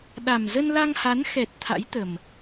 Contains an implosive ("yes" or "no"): yes